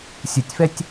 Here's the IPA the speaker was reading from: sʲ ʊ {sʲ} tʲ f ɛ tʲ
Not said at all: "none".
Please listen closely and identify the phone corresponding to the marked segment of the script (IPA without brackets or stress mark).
none